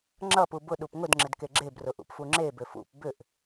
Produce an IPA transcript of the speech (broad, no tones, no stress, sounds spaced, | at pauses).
ŋ͡ǁ ʌ p u b ʊ ɗ u p ŋ ʊ d ŋ͡ǁ ɪ d k e ɡ͡ǁ e b r ʊ ʔ ṵ p f u ŋ͡ǁ e b ʏ f ṵ p b ʏ ʔ